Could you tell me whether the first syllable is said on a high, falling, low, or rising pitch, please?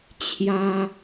high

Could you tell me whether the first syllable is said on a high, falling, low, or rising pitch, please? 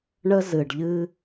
high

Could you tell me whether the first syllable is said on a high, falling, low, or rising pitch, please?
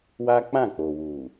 high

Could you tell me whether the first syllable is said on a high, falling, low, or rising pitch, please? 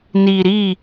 low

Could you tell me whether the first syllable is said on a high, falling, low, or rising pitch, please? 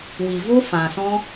low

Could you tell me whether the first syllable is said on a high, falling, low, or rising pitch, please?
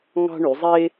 high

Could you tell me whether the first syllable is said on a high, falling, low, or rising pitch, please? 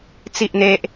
high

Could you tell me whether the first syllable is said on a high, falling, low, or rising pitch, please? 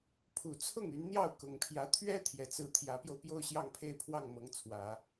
low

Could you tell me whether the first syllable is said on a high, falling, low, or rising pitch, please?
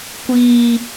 high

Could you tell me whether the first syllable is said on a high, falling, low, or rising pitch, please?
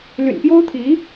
low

